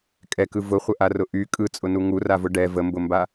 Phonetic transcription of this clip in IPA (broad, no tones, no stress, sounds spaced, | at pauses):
kʼ ɛ k ɯ v ʊ χʷ ə ʔ a r ʊ ʔ y kʼ ɯ t͡sʼ ʊ n u ŋ u r a v ʊ ɖ ɛ v ə m b ʊ m b a